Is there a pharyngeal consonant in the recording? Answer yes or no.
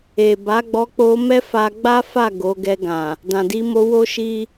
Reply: no